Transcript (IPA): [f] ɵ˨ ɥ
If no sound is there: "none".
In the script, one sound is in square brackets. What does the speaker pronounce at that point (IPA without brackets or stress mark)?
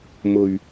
m